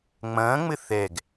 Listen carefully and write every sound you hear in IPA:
ŋ͡m ɐ̃ː ŋ͡m ɘ θ ɛ ɡ

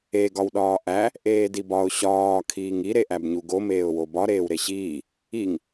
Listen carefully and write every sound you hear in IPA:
e ɡ ɒ w ɗ ɒː ʔ æ | ʔ eː d i b ɒ ʊ̯ ɕ ɒː kʰ iː ŋ i ɾ e ʔ æ b ɲ u ɡ o m eː ʊ̯ w o b ɒ ɾ eː w ɾ e ɕ iː | i ŋ

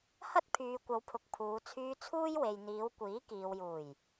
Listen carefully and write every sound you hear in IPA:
h ɐ˥ t̚ pʰ yː˨ kʷ ɐ˨˧ w pʰ ʊ˨ k̚ pʰ uː˨˧ t͡sʰ yː˧ t͡sʰ uː˥ j w e˨ j n̪ iː˨˧ w kʷ iː˨˥ k iː˨ w j uː˨˩ j

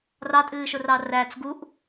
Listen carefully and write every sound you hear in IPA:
r ɑ tʼ ɨː ʃ ʊ r ɑ r æ t͡s ɡ u ʔ

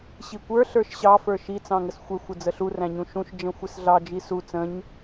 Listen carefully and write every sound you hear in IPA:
ɕ i kʷ ə˞ ɬ ə˞ ʃ ɕ ɑ f ə˞ ʃ i t͡s ɑ̃ ŋ ə s xʷ ɛ xʷ ə d͡z ə ɬ u r æ̃ ɲ ũ ʃ ũ ʃ d͡ʒ ə̃ xʷ ɪ s ɮ ɑ d͡ʒ i s u t͡s ə̃ ɲ

